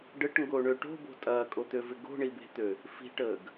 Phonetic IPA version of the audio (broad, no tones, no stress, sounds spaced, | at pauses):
ɖ ə ʈ ŋ ɡ o ɳ ø ʈ o̤ b o̤ tʼ ɐː kʼ o t̪ ø v ɪ ɡ o̤ ɳ i b e̤ t̪ ø | f i̤ ʈ əː ɡ